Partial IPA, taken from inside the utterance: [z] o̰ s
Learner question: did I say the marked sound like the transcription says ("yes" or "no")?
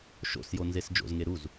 no